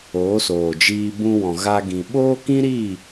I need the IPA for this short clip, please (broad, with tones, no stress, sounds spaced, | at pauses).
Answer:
oː˨˦ s oː˨ d͡ʒ iː˧ b ũ˧ w ɔ̃˨ ɣ a˧ ɡ ĩ˨ ɓ oː˦ k ĩ˦ ɾ iː˦˨